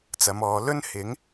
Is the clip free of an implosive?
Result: yes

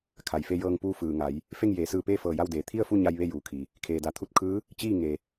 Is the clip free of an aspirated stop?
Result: no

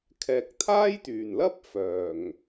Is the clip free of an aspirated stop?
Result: no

